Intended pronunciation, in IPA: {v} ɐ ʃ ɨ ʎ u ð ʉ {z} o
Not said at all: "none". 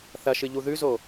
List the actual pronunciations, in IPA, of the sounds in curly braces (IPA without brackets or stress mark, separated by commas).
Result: θ, z